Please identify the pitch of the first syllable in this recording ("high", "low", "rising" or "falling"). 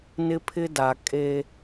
high